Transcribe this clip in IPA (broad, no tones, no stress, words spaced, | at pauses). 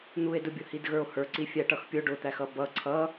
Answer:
n̪ue̯dʊ bʲʊhidɣə˞o̯hə˞ ǀifʲæʈʌxpʲʊ ɖʊt̪æxʌ bʌ ǀʰʌ